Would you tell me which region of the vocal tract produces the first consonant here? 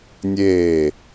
tongue tip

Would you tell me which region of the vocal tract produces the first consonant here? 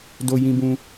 tongue tip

